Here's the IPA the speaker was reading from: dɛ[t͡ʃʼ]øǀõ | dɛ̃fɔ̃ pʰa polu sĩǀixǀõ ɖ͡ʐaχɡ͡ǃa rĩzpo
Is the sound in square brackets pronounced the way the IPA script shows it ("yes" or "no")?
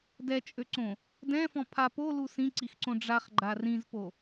yes